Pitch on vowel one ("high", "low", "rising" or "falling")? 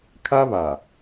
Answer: high